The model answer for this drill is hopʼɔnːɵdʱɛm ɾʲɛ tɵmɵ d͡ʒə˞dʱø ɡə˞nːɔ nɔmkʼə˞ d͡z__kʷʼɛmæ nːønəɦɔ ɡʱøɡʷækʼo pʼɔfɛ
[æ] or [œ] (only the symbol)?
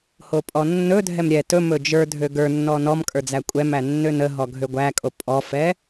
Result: æ